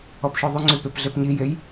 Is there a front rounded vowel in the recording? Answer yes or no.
yes